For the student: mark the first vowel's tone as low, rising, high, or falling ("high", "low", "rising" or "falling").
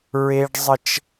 high